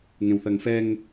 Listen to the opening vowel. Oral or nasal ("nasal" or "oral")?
nasal